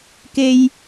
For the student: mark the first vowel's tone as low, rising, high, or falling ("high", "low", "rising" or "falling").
high